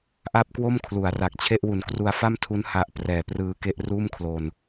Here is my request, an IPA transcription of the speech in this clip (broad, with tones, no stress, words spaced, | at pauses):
ʔa˥˩p̚kwo˥˩mkʰlu˩˦a̯ra˨˩k̚ t͡ɕʰe˥˩ʔwu˨˩nkru˧a̯ fa˥˩mtʰu˦˥n ha˦˥ʔ prɛː˨˩prɯː˧ke˥˩ʔ ruː˥˩mkʰlo˧n